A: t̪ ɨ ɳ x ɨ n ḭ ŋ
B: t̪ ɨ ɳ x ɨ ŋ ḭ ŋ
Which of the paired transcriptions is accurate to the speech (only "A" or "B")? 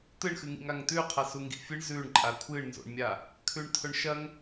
B